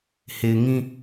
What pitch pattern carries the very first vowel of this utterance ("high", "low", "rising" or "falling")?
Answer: low